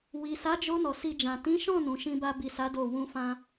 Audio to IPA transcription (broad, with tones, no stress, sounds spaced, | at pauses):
w i˨ s a˨˦ d͡ʒ o˧ n ɔ˨ s i˧ d͡ʒ ã˨ t ĩ˨˦ ʃ ɔ̃˦˨ n ũ˨˦ ʃ ĩ˦ b a˧ b i˨ s a˨˦ d o˦˨ w ũ˧ f ã˧